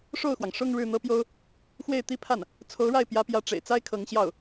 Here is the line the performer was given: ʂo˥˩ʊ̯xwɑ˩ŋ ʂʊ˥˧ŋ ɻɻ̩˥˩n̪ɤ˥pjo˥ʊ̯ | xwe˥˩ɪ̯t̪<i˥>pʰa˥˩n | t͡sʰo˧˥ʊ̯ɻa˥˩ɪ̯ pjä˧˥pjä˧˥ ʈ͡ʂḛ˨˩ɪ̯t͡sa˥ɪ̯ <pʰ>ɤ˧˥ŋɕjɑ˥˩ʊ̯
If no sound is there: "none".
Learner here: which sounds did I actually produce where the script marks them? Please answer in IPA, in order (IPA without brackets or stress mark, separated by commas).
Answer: i˥, kʰ